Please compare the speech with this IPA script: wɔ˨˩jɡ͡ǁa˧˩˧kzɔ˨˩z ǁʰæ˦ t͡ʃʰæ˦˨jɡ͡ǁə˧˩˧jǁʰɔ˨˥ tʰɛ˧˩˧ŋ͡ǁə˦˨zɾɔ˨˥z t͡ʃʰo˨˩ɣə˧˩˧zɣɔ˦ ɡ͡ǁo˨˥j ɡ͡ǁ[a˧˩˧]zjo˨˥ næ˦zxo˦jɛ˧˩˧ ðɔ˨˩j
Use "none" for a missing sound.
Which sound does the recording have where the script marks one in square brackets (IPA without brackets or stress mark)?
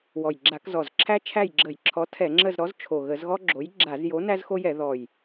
a˧˩˧